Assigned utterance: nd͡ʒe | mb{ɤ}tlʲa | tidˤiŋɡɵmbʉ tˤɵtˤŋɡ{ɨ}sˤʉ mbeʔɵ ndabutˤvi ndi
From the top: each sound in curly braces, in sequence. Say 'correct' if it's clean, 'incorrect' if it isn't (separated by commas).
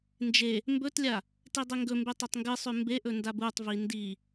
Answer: incorrect, correct